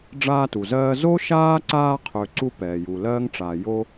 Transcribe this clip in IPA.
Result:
ɖ͡ʐ aː˦ t u˩ z ɜː˦ z o˥ ʃ aː˥ ǀ aː˦ qʰ ø˨ ǀ u˦ p ɛː˩ j u˨ l ɜː˥ ŋ ʈ͡ʂ aː˨ j o˥

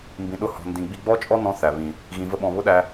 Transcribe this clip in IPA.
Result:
m b ĩ˧ ɗ ʊ˦ h ɔ̤˧ n d ĩ˧ ɡ͡b i˧ ɡ͡b ɔ˦ t͡ʃʼ ɔ˦ n ɔ̃˦ θ æ˨ β ĩ˨ | ɣ ĩ˧ v ə˦ ɓ ɔ̃˧ β ʊ˦ ɗ æ˧

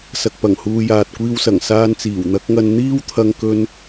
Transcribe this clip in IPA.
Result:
s ɐ˧ k̚ p ɐ˨˩ ŋ h uː˧ j aː˨ t̚ kʷ iː˧ w s ɐ˨˩ ŋ s aː˧ n t͡s iː˨˩ w n̪ ɐ˨˥ k̚ ŋ ɐ˧ n n̪ iː˥ w t̪ʰ ɐ˧ ŋ k ɵ˥ n

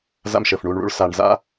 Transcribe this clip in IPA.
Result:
z a̰˦ m ʃ əː˨ f ɳ uː˧ ɳ ɭ ṵ˦ ɭ s a˨ ɳ z a̰˦

